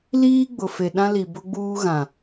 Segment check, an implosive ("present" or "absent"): present